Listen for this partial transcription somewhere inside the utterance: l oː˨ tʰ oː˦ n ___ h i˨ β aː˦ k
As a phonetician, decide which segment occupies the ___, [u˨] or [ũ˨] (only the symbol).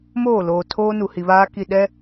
u˨